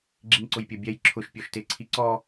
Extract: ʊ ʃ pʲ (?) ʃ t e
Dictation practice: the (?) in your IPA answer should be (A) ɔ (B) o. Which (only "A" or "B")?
A